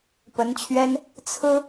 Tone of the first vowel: rising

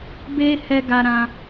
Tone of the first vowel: high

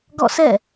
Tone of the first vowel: falling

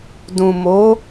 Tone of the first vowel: low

